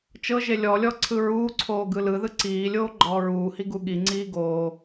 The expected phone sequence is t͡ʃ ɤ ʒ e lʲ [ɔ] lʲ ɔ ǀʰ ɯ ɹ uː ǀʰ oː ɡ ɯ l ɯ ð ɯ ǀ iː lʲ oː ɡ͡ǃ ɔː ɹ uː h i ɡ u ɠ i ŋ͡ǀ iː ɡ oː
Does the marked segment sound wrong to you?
no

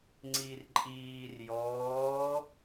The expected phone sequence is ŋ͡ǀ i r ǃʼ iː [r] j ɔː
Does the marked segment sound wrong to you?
no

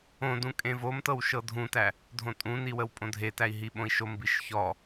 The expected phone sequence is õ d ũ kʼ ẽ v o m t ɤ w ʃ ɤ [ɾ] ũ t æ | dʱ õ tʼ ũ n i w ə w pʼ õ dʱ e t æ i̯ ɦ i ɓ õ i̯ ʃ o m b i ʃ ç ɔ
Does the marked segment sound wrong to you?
yes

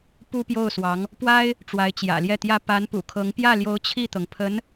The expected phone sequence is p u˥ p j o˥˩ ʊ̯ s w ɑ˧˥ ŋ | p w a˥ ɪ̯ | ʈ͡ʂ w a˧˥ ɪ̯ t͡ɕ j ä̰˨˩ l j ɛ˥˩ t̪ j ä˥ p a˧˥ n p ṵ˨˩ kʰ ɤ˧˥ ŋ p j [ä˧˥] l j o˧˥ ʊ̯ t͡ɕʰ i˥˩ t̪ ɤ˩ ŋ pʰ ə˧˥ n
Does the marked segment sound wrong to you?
yes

